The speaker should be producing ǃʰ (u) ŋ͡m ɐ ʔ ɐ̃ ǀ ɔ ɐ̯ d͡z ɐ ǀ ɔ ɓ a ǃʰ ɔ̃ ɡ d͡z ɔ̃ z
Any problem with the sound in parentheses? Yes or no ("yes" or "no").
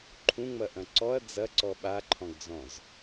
yes